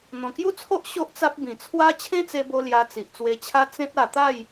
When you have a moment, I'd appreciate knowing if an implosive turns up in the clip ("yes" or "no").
no